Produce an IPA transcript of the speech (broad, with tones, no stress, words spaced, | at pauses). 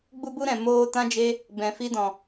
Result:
ɡ͡bu˧bu˧ɾɛ̃˨ moː˧ tã˦d͡ʒe˦ | bɛ̃˧fi˦dɔ̃˧